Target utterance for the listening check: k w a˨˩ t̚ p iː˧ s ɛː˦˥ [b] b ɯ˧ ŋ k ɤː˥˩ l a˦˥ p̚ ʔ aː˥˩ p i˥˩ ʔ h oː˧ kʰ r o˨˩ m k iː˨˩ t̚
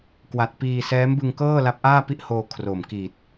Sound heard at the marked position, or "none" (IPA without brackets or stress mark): m